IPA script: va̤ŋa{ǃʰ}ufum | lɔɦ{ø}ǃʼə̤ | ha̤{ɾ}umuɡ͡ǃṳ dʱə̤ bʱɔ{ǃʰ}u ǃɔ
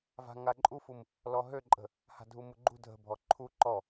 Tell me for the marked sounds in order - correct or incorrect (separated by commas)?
incorrect, correct, incorrect, correct